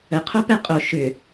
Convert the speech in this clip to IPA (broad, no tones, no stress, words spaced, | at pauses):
əqʰopɛ qʼo ʃʏ